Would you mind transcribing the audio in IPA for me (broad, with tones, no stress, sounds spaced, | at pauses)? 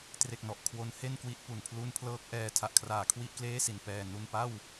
t r e˨˩ k̚ n ɔ˨˩ ʔ kʰ w o˦˥ n h e˥˩ n k w i˦˥ ʔ p u˨˩ n pʰ l u˧ n pʰ l ɤː˦˥ k̚ ʔ ɛː˨˩ tʰ a˨˩ ʔ kʰ r aː˩˦ kʰ w i˥˩ ʔ k l eː˥˩ s i˨˩ n p ɛː˨˩ n u˧ n p a˥˩ w